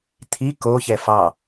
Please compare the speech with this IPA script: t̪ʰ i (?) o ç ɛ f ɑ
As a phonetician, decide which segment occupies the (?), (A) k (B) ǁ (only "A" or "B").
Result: A